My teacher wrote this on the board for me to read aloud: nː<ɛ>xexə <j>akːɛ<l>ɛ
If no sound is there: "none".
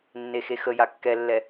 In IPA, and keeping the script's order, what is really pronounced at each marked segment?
e, j, lː

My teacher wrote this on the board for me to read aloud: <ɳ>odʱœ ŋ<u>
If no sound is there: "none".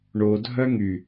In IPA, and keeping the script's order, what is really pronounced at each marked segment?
ɳ, y

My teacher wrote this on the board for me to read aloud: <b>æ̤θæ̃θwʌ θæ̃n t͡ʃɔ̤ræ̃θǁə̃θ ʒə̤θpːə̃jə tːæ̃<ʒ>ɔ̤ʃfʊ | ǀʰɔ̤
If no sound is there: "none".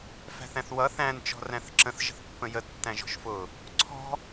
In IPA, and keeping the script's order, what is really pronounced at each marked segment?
f, ʒ

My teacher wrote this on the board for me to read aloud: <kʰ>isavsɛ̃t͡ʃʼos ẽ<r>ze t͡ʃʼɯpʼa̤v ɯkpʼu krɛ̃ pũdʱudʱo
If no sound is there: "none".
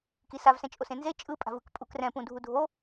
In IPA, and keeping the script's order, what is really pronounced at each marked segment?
k, n

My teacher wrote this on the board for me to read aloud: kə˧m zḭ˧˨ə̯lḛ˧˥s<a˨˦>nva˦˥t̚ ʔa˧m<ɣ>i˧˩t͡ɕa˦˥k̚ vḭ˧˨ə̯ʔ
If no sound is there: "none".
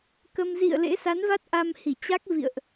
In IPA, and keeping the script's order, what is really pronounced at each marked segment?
a˨˦, h

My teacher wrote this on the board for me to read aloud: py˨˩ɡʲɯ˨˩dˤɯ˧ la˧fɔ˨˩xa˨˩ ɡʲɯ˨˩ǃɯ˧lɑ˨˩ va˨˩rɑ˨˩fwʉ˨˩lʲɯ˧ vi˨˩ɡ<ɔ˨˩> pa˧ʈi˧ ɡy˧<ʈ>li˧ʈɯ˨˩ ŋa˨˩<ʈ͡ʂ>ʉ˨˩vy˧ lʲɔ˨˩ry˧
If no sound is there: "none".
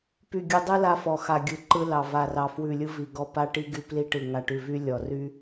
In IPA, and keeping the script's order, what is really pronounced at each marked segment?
ɔ˧, p, ʈ

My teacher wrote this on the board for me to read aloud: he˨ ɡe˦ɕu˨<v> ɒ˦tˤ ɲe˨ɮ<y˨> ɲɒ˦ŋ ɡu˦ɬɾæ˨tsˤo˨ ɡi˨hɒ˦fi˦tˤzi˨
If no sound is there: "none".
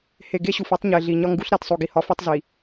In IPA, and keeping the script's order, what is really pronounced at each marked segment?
f, i˨

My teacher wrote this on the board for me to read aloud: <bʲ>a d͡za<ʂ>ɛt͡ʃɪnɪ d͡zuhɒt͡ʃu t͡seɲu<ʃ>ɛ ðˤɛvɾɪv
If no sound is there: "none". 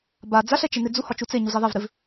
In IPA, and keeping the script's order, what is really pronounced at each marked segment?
b, ɬ, z

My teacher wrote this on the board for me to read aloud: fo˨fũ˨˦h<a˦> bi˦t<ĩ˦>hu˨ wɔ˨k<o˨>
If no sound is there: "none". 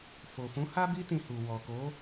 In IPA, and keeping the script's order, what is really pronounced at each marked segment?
a˦, ĩ˧, o˨˦

